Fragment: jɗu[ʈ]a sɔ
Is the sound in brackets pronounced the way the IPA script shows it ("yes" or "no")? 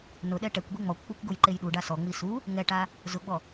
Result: no